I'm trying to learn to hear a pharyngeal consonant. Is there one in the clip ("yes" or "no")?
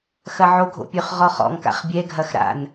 yes